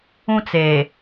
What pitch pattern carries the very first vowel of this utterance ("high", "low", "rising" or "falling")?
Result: high